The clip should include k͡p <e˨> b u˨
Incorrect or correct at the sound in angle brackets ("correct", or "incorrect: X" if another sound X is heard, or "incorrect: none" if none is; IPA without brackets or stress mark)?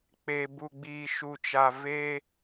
correct